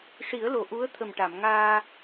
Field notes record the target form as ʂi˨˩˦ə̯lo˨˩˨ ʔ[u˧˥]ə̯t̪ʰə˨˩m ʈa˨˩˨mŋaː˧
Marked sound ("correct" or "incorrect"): correct